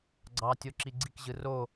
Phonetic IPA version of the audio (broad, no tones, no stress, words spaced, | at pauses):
ɡ͡ǀɑtʲoǁi ɡ͡ǀikʑɯ ro